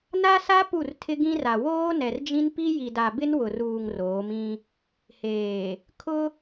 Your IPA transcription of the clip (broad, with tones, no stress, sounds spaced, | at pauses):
n a˦ s a˦ p u˦˨ r tʰ ɪ˦ ɡ ĩ˦ r a˨ w oː˦ n ɛ˨ r d͡ʒ ĩ˦ n p i˦ j i˨ d a˨ b ɪ˦ n w ʊ˨ r uː˨ ŋ r oː˨˦ m ĩ˦ | h eː˨ | kʰ ʊ˦